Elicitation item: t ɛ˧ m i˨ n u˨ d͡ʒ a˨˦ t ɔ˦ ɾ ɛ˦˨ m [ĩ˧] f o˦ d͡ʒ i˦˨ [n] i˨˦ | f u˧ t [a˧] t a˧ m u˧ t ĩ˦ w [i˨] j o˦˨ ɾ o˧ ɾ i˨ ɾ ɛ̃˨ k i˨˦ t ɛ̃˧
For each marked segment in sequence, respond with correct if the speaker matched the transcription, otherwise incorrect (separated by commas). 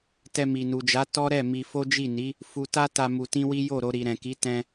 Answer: incorrect, correct, incorrect, incorrect